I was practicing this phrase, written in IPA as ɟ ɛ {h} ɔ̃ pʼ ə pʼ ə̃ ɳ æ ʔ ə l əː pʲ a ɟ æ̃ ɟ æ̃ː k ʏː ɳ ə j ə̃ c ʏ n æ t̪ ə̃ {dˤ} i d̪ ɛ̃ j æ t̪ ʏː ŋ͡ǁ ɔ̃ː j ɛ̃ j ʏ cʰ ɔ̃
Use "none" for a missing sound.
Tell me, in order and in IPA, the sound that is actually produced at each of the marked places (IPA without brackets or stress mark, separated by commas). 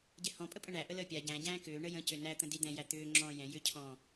h, d